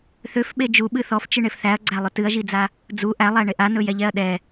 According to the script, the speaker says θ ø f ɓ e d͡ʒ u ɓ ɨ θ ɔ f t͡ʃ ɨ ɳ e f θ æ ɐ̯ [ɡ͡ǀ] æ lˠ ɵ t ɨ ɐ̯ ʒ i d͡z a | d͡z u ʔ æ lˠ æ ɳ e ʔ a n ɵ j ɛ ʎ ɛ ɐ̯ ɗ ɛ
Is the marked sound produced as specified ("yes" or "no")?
yes